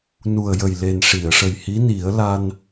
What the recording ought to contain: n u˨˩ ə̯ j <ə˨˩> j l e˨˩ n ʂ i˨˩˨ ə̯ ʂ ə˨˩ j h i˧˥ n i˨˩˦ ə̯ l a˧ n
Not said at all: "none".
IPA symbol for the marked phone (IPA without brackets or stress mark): ə˨˩